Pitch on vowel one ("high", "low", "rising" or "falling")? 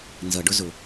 low